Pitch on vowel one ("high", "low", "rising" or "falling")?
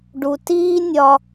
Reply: low